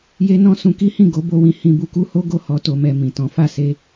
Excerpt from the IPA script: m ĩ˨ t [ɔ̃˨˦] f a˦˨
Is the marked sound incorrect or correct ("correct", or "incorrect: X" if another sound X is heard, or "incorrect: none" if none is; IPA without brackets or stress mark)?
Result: correct